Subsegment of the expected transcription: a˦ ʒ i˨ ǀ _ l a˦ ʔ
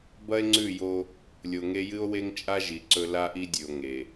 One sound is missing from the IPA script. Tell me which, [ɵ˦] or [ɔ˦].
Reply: ɵ˦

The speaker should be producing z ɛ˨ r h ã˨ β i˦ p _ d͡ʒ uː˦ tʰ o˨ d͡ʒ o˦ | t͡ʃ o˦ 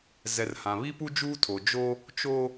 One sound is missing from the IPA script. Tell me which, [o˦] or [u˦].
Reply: u˦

